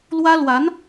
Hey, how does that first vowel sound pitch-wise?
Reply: high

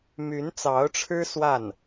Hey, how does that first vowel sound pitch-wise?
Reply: rising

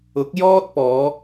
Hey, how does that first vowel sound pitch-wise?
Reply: rising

